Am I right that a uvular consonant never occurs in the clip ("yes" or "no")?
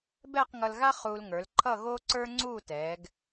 no